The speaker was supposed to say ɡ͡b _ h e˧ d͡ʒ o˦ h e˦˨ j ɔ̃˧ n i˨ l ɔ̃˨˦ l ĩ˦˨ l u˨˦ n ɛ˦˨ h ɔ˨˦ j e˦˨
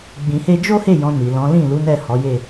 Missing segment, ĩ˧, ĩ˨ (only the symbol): ĩ˨